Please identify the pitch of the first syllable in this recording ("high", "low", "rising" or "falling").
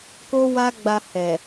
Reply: high